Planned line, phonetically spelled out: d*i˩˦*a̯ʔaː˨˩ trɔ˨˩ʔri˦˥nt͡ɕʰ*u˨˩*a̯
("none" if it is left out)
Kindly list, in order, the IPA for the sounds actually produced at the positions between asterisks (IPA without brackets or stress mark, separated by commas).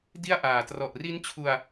i˥˩, u˧